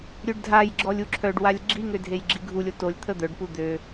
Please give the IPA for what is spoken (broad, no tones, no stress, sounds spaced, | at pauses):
ɾʲ ø ɖ dʱ a j ɡ͡ǁ ɔ lʲ u ǁʰ œ ɖ w a lʲ ɡ͡ǁ i ŋ ø dʱ e j ɡ͡ǁ i ɡʱ u lʲ o t o lʲ t̪ʰ ə d̪ œ ɖ p u d̪ ø